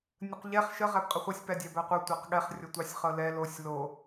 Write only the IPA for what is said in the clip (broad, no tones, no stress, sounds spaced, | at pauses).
nʲ ə q ʎ ɛ χ ʃ ə ʁ æ b qʼ ə χʷ ɤ sʲ p æ dʲ æ b æ qʷ ɤ tʷ æ q ɠ ɛ χ rʲ ɤ tʷ ɑ sʲ χ ɤ l ɛ l o sʲ l o